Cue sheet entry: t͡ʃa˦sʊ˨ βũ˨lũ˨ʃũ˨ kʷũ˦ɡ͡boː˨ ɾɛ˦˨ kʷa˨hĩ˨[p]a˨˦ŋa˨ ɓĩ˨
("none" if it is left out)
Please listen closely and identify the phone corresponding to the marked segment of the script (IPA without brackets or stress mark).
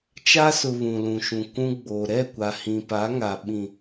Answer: p